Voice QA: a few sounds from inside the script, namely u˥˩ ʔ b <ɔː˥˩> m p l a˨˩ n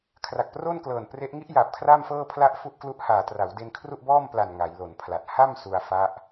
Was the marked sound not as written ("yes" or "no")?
no